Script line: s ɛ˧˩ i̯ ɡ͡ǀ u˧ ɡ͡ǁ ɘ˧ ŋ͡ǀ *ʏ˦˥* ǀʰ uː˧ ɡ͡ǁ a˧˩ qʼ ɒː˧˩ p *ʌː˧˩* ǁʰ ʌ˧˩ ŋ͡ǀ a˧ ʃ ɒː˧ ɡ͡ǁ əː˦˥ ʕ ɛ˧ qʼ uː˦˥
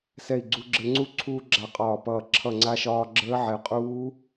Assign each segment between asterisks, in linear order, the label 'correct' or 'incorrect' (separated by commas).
incorrect, correct